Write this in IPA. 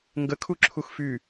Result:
ŋɡə kʰuǁʰuxfy

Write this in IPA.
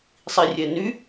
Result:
sˤirʲɛny

